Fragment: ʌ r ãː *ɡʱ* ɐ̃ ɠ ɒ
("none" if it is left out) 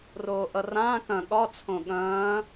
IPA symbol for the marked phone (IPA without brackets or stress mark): k